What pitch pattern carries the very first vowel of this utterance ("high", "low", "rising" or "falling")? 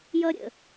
high